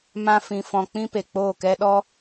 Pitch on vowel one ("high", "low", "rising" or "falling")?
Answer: high